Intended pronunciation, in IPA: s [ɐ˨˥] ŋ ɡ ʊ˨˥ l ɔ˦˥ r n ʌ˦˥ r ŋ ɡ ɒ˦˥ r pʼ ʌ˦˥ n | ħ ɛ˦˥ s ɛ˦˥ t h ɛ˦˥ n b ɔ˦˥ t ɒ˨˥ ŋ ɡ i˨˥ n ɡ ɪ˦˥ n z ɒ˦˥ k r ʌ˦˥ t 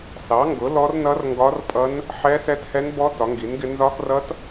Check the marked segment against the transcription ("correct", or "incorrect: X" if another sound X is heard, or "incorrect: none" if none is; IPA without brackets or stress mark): incorrect: ɑ˨˥